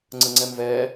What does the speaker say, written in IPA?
ŋ͡ǀ ə ŋ͡ǀ ɛ m v ɛː

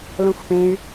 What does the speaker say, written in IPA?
l õ xʷ p ẽ y̯

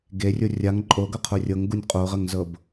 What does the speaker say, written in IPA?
ɡ e rʲ o rʲ a ŋ ǃʼ o ɡ ɤ qʰ o rʲ ɤ ŋ ɡ u nʲ qʼ o ʁ ə ŋ z ɤ b

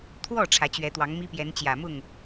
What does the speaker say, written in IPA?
t̪ʰ w ɔ˥˩ ʈ͡ʂʰ ä˧˥ t͡ɕ ɥ ɛ˧˥ t̪ w ɑ˧˥ ŋ m i˥ p j ɛ˧˥ n t͡ɕ j ä˨˩ m ʊ˥˩ ŋ

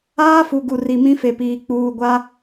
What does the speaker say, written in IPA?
aː˦ f u˨ ɡ u˨ r i˨ m ĩ˦ f e˨ p iː˨ k͡p uː˨ ɡʷ a˦

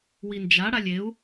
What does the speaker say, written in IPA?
w i n d͡ʒ a ɽ a lʲ e u̯

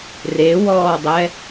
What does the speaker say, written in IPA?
r e w ɔː dˤ ɛ

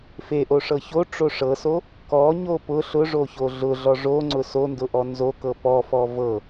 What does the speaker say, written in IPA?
f e ʔ o ʂ ɤ ç o ʈ͡ʂ o ʂ ɤ s o | k ɔ ɲ o p ʊ ɬ ʊ ʐ o ç o ɮ ʊ ɮ ɔ ʐ o ŋ͡ǀ ʊ s o n d ʊ ʔ ɔ n z o k ɤ p ɔ f ɔ v ɤ

